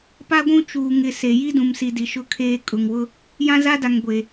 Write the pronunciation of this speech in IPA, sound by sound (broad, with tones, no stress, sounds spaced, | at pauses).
p a˦ ɡʷ ũ˦ t͡ʃ uː˨ ŋ ɪ˨ s e˨ j i˦ d ũ˨ m s i˨ d i˨˦ ʃ ʊ˦ kʰ eː˦ kʼ ʊ˨ ŋ w ʊ˦ | j ã˦ z a˦ d a˨ ŋ ɡʷ e˨